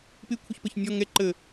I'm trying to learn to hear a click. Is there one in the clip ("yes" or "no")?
yes